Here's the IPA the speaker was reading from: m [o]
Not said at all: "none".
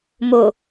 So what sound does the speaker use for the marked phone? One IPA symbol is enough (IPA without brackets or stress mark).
o